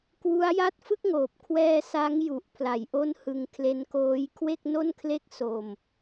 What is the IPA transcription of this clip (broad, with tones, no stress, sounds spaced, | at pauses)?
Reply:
k w u˦˥ a̯ j a˥˩ t̚ f ɯ˥˩ k̚ ŋ oː˨˩ p̚ kʰ w ɛː˧ s a˦˥ ŋ j u˨˩ ʔ pʰ l a˩˦ j ʔ o˦˥ n h ɯ˧ ŋ kʰ l e˦˥ n k oː˦˥ j kʰ w e˥˩ k̚ n o˥˩ n kʰ l e˥˩ k̚ s o˧ m